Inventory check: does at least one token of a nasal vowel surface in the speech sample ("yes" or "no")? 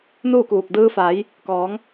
no